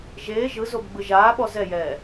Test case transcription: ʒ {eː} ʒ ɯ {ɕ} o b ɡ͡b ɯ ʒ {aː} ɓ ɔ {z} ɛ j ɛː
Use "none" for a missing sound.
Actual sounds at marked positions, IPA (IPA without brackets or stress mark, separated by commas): eː, z, aː, z